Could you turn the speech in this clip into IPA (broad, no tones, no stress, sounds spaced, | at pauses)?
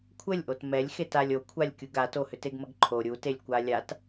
kʷʰ ə lʲ ʔ o t m ɛ lʲ x e t a lʲ o kʷʰ a lʲ kʲ u ɡ a t o h ʏ t e ɡ m ə ɡ ǃʰ o ɾʲ u t e lʲ kʷ a lʲ a t